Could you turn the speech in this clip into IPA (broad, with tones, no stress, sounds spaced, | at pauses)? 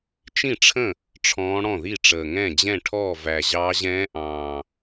t͡ʃ ĩ˥˩ ʈ͡ʂʰ ə̃˥˩ | ʈ͡ʂʰ ɔ̃ː˧˥ ɽ ɔ̃˥˩ ð i˥˩ ʈ͡ʂ əː˨˩ ŋ ɛ̃˥˩ d͡ʑ ɛ̃˥˩ ʈʰ ɔː˥˩ v æ˨˩ ʑ ɑː˧˥ ʑ ɛ̃ː˧˥ ʔ ɑ̃ː˨˩